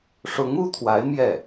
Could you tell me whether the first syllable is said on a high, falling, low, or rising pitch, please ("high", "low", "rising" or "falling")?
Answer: rising